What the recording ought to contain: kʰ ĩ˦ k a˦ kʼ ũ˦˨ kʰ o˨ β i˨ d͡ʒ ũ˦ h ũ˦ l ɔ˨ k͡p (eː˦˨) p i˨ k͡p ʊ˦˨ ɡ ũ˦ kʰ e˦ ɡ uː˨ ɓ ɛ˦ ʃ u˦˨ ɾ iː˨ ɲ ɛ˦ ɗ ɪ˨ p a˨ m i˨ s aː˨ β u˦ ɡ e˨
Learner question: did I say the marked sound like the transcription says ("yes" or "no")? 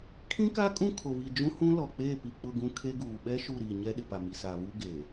yes